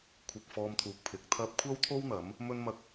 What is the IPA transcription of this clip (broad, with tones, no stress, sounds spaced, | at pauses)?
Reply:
kʷʰ ɐ˧ k̚ f ɔː˧ m t̪ʰ uː˨ k̚ pʰ ɪ˨˥ k̚ t̪ʰ ɐ˥ p̚ kʷʰ ɐ˥ w t̪ʰ o˥ w n̪ ɐ˨˥ m | m ɵ˥ n m ɐ˥ k̚